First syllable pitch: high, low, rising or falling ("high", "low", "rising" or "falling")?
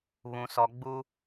low